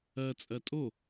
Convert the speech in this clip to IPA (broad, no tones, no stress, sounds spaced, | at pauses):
ɜ t͡sʼ ɜ tʼ o